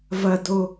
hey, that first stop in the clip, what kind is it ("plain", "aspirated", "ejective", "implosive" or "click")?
plain